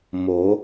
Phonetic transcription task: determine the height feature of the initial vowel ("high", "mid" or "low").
mid